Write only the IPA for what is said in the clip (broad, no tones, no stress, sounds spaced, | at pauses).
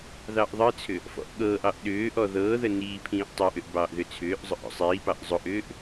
ð ɑ ʔ ðˤ ə t͡sʰ ʏ | f ɔ̰ ʔ ɠ ɤː ʔ ɑ ʔ ɗ ʏː ʔ ɔ ð ɤː ð ə n iː pʰ ĩː ʔ tˤ ɑ ʔ ʏ ʔ b ɑː ʔ ð ʏ t͡sʰ ʏː ʔ zˤ ʊ ʔ ɔ̰ sˤ iː p ɑ ʔ zˤ ʊ ʔ ʏː ʔ